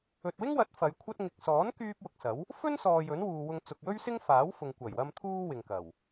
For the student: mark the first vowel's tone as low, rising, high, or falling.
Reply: low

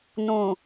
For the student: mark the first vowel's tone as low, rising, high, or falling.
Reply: low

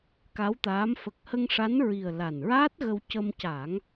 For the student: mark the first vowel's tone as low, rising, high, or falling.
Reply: rising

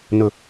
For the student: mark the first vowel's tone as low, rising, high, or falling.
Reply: low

